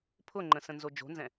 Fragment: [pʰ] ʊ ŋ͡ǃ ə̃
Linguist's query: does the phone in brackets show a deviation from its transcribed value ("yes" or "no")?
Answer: no